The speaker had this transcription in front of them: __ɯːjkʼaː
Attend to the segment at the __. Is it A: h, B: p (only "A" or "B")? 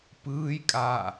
B